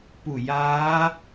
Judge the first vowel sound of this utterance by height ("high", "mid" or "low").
high